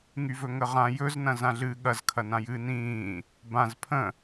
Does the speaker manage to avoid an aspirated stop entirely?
no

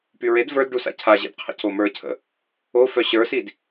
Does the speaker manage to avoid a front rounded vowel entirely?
no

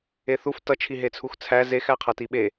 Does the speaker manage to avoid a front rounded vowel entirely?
yes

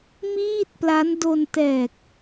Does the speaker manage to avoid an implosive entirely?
yes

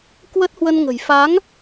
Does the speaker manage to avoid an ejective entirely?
yes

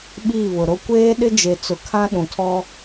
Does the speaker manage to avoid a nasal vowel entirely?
no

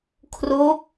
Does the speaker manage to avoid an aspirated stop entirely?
no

